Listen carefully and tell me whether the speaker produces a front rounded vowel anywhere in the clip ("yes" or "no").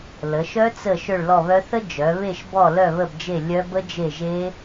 yes